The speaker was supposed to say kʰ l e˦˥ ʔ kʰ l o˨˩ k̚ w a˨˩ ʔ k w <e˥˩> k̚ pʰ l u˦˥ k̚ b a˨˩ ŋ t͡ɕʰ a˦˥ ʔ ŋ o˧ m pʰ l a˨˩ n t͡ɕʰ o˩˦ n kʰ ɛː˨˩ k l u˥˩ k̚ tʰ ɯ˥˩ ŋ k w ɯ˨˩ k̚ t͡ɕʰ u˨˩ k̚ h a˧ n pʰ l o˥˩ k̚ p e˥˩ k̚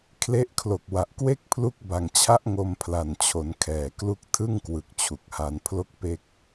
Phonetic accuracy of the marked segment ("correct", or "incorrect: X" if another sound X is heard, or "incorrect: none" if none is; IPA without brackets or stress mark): correct